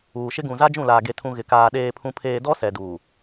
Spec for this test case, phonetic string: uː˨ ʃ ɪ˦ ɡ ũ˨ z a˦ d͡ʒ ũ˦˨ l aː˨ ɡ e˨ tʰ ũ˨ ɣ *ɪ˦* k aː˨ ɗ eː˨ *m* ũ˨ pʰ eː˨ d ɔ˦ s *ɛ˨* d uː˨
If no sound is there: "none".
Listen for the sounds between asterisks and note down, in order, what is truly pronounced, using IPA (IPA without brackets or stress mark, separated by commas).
ɪ˨, pʰ, ɛ˨